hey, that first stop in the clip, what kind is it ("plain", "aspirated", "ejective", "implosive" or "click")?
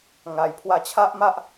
aspirated